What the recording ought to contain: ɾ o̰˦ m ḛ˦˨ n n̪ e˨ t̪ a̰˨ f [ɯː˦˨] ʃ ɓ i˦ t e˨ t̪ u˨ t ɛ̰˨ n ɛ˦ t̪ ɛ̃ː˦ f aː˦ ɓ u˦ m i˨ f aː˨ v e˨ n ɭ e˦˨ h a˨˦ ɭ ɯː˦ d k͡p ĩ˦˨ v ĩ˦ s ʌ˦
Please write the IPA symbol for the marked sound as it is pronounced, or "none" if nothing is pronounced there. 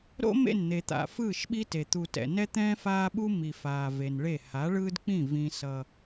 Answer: ɯː˦˨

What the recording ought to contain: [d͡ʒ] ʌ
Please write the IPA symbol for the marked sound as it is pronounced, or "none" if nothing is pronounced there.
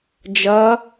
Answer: d͡ʒ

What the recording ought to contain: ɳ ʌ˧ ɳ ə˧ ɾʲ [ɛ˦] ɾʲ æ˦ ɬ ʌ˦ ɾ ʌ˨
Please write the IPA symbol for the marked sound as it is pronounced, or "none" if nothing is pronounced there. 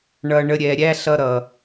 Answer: ɛ˨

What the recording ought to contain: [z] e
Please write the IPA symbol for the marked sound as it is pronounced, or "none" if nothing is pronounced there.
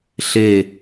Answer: ɬ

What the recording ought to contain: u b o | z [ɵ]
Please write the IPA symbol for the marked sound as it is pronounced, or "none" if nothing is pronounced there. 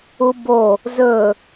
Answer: ɵ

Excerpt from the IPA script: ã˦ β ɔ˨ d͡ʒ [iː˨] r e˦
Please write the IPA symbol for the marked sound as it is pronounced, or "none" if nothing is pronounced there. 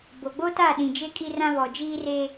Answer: iː˦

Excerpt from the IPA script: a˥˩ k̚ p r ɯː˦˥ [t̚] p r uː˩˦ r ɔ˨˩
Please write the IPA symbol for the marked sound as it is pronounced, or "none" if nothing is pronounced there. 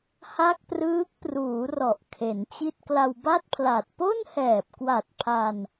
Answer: k̚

